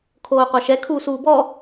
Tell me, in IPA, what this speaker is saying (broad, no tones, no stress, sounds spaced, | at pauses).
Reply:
kʰ oː qʷ a ʃ ɛ kʰ uː s uː b ɔ